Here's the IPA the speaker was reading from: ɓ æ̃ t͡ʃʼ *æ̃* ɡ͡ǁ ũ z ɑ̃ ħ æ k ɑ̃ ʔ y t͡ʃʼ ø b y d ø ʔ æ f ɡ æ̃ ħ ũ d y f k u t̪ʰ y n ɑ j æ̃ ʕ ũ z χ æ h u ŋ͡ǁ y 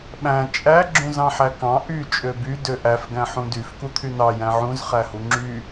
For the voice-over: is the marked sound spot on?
no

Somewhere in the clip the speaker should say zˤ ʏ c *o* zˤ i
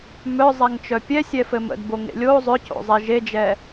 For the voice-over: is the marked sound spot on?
no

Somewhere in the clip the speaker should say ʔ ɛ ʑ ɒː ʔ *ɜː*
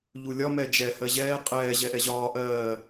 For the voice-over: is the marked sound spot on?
yes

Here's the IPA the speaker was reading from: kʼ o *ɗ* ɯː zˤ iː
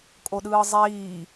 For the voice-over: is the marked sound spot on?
yes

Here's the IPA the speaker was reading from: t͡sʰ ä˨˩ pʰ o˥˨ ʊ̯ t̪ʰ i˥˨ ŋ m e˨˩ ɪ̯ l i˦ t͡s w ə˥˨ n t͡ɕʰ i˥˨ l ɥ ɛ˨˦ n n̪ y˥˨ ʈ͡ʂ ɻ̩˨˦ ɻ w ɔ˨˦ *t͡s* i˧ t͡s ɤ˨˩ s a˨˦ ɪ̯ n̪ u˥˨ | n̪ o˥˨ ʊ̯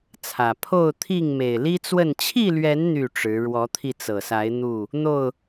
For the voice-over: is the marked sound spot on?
no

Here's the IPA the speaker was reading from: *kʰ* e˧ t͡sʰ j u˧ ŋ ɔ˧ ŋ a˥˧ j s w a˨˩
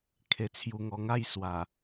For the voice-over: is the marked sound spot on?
yes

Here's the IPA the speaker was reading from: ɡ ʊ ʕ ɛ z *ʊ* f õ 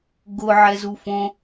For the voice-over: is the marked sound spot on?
no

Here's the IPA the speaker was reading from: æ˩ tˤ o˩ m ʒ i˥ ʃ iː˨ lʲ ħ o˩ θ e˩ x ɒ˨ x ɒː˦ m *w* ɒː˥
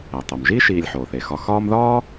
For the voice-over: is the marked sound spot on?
no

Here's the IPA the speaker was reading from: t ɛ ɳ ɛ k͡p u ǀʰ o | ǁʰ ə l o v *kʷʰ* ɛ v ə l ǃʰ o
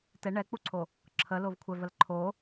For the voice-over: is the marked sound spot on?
yes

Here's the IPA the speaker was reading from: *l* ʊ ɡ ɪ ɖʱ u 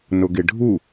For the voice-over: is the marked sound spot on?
no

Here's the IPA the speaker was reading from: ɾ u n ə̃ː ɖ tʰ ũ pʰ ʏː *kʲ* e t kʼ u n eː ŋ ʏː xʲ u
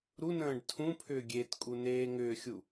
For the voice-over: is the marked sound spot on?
no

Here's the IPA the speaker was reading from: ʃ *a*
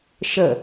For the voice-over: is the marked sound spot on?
no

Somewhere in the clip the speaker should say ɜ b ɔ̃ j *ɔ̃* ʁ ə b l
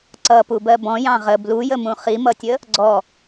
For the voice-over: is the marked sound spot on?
no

